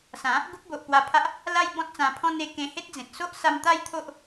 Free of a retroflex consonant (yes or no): yes